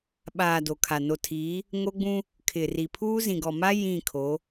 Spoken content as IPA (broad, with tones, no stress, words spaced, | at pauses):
ɓaː˨ do˨kʰa˨ no˨tʰiː˨˦ | ŋo˦ɡ͡bũ˦ | kʰɪ˨ri˨pʰuː˦ zĩ˨ɡɔ˨ma˦ jĩ˦˨ kʰo˨˦